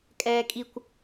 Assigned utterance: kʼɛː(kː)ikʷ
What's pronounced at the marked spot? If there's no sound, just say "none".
kʼ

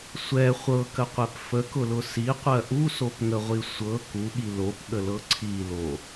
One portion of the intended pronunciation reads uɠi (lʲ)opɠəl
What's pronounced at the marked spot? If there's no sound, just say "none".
l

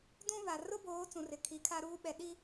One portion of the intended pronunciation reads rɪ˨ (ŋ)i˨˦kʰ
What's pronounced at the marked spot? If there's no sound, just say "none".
kʰ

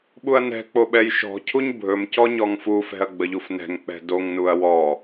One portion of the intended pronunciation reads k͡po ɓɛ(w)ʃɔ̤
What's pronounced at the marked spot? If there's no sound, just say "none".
j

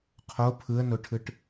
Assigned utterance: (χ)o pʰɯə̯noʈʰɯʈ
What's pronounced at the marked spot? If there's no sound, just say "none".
qʰ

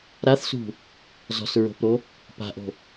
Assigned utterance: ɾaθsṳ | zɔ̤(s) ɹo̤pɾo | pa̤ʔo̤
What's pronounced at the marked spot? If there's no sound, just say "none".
s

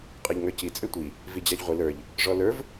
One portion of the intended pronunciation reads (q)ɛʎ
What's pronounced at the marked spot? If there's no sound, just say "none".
qʼ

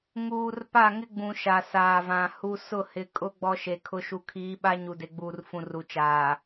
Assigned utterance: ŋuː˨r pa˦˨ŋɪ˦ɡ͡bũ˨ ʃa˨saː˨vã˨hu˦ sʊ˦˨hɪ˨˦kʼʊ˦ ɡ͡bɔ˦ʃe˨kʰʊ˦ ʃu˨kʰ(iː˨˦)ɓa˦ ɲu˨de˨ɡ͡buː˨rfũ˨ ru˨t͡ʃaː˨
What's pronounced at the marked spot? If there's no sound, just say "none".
iː˨˦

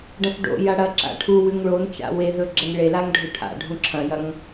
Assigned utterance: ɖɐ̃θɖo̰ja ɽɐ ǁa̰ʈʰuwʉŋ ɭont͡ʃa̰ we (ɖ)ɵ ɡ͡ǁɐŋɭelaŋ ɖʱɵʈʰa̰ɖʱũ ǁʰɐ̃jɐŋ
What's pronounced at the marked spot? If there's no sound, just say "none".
ð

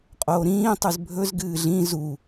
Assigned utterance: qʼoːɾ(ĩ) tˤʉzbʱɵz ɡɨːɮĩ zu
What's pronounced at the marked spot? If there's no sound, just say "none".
ĩː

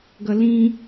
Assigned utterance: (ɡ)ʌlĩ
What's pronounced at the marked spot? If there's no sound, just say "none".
ɡ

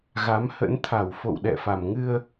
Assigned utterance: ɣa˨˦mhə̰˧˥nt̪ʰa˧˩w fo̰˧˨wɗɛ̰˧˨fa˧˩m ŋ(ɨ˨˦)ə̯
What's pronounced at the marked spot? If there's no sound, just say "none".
ɨ˧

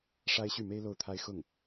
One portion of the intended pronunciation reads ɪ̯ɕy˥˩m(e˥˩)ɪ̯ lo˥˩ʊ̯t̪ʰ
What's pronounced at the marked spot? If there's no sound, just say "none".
e˥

